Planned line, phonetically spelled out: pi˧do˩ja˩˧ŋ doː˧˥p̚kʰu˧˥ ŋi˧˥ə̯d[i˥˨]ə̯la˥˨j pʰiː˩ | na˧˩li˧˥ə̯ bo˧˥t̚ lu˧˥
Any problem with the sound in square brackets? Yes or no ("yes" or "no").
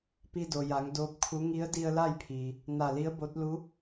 yes